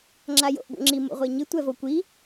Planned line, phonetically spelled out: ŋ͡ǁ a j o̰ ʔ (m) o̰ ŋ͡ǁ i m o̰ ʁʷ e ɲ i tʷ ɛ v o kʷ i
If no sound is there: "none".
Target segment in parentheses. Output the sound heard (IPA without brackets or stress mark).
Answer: b